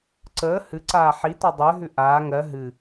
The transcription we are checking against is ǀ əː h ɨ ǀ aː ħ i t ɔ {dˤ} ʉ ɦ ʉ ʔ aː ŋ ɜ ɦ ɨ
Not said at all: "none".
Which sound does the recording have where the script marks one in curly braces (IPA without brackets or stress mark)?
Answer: dˤ